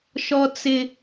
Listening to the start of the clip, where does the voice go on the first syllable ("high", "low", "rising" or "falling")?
high